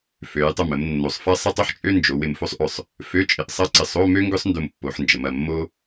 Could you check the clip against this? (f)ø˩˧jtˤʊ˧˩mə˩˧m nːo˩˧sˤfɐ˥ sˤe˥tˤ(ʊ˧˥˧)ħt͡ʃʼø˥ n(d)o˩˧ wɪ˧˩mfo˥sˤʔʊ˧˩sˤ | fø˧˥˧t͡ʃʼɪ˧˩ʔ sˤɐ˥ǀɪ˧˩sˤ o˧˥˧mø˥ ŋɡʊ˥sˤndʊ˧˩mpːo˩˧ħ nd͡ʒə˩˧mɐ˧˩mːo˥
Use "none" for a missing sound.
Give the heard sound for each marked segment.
f, ʊ˥, d͡ʒ

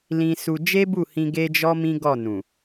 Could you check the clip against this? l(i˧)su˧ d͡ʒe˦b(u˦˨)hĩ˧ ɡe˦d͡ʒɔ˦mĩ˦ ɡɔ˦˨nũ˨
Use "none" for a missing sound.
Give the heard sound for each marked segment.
ĩ˧, u˦˨

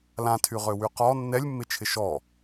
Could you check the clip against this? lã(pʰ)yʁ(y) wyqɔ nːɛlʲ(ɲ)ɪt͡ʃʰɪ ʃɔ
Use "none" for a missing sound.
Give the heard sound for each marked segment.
tʰ, ø, mː

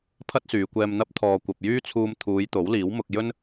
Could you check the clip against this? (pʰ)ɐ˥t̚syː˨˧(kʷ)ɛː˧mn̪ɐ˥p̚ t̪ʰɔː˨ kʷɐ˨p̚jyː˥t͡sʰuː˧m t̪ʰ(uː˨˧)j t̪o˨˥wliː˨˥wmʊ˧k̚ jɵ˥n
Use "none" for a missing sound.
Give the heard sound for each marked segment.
pʰ, kʷ, uː˨˧

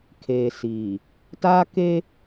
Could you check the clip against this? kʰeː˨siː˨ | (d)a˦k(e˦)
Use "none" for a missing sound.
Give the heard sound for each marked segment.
t, e˦

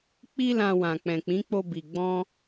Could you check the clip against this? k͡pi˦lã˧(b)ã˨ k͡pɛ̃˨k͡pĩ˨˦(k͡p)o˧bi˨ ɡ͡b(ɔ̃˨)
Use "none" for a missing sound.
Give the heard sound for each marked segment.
w, k͡p, ɔ̃˧

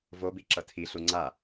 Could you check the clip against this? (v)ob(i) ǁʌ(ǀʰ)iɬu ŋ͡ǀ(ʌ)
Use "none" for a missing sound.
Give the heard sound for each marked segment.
v, i, tʰ, a

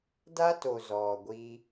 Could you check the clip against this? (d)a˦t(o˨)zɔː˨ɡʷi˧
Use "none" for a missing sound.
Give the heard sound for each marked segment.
d, o˨

